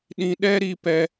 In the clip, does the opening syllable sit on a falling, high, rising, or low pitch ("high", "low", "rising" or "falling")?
low